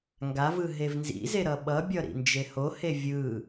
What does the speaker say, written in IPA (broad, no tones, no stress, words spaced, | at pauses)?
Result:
ŋɡavɯ ɦevnzḭze ɾʌɓʌbʲʌ ɾḭnd͡ʒehohe vʲɯ